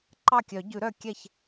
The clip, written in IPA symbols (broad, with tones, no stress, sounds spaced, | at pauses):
ǃ ɑ˥˩ kʲ œ˨˩˦ ɟ ʉ˨˩˦ ɾ œ˥˩ kʲ ɛ˥˩ ç